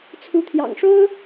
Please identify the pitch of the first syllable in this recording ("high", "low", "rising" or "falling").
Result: rising